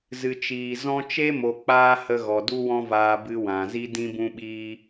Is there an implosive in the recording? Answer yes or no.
yes